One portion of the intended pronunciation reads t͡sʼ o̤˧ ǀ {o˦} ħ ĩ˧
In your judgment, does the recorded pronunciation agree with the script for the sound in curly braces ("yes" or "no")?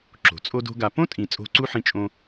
no